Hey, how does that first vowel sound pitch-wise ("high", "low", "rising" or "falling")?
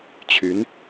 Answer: rising